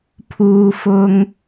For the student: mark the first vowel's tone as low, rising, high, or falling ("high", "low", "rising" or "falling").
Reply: low